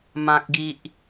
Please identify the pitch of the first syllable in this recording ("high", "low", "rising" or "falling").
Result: high